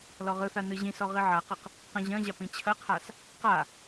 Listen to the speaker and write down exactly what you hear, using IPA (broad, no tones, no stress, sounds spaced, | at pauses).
l ɔ ʁ ɯ θ a n ɯ ʑ ĩ s ɔ ʁ i ʕ a q ɐ q | q ɐ̃ ʑ ɐ̃ ʑ a p ĩ t͡ɕʰ ɐ qʰ a s | q a